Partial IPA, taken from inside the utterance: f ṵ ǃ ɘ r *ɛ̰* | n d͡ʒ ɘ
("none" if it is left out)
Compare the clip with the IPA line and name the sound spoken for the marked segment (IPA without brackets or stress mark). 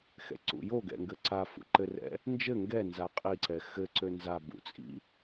ɛ̰